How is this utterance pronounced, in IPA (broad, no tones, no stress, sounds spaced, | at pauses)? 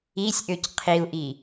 i sʲ ʔ ø c qʰ i u̯ ʔ i